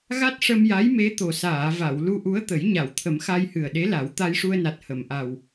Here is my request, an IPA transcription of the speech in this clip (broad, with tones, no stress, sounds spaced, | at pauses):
ɣ a˦˥ t̚ ʂ ə˧ m j a˧˥ j m e˧˥ t̪ o˨˩ s aː˨˩˨ v a˨˩˨ w l u˧ ʔ u˧˥ ə̯ t̪ ə˨˩˦ j ɲ a˨˩˨ w t̪ʰ ə˨˩˦ m x a˧ j h ɨ˨˩ ə̯ ɗ e˧˥ l a˨˩˦ w t̪ a˧ j ʂ u˧ ə̯ n a˨˩ t̚ h ə˨˩˨ m ʔ a˨˩ w